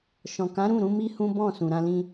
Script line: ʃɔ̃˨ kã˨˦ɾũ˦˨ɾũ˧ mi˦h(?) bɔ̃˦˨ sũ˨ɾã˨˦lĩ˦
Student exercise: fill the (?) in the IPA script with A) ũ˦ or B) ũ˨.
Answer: A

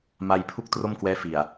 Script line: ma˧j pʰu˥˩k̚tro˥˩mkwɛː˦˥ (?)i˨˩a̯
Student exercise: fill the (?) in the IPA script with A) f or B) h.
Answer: A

